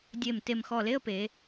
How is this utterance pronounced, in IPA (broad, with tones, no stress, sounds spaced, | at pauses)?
dʲ e˧˩ m t e˧˩ m x ɔ˧˩ l e˥˧ ə̯ p e˩˧